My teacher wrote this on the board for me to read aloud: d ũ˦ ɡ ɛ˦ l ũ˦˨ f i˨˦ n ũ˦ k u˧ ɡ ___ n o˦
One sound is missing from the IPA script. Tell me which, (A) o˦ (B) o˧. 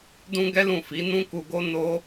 A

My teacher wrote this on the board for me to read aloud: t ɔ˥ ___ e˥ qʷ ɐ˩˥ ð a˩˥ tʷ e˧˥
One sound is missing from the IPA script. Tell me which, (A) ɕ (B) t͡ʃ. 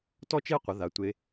B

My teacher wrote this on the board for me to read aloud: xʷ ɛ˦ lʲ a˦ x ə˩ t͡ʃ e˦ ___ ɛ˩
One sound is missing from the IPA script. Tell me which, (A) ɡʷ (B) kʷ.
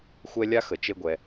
A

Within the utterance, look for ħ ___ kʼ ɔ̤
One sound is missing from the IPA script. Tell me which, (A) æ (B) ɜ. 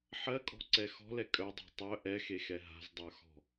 B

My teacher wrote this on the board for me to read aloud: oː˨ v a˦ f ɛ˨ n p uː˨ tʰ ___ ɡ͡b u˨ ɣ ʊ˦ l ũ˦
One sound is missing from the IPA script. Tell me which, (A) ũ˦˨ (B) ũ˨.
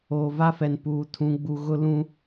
B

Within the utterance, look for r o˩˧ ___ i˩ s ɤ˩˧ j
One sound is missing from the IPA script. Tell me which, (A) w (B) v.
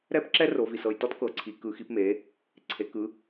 B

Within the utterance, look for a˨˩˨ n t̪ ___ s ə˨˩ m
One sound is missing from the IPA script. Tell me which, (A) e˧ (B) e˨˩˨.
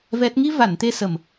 A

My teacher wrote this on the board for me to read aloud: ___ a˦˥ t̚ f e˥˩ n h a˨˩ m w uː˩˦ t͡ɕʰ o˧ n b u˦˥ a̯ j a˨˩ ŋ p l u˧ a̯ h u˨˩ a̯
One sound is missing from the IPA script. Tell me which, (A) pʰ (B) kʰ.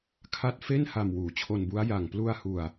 B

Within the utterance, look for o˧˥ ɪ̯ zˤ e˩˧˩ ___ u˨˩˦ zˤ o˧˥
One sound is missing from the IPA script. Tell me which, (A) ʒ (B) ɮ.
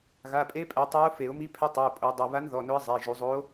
A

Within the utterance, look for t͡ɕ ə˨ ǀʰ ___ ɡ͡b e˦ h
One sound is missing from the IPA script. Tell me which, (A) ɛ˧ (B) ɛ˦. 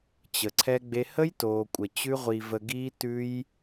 B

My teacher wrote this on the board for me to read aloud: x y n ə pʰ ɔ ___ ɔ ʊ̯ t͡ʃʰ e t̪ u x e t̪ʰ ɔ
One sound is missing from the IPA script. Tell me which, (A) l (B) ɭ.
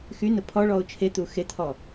B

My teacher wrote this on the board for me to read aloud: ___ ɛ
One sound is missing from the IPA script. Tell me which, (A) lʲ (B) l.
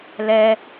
B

